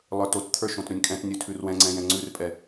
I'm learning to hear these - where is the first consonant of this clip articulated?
tongue tip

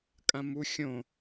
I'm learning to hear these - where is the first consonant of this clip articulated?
velum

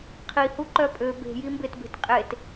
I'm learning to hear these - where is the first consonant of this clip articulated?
uvula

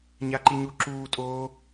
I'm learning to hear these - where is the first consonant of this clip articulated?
palate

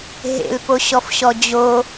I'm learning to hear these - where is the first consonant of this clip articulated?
throat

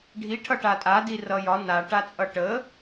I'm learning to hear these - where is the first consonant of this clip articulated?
retroflex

